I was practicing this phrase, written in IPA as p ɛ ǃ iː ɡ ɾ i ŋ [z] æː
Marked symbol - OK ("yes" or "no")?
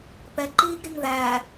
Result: no